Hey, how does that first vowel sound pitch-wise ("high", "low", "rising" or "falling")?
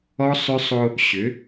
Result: high